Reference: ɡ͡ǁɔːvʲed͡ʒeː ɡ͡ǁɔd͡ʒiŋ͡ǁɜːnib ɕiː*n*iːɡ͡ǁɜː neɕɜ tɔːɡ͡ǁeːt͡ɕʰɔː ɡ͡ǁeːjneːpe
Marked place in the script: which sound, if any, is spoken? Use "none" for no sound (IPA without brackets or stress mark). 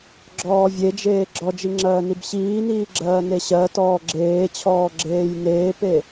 n